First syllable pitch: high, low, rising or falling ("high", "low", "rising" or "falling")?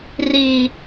high